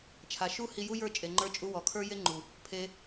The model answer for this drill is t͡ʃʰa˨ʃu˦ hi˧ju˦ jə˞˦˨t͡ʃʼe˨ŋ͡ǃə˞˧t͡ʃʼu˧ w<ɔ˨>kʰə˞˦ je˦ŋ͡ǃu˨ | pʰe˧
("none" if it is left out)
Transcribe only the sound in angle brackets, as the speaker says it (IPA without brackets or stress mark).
ɔ˨